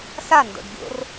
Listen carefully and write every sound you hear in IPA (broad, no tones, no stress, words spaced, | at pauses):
sando̰ɖ ɡʲo̰r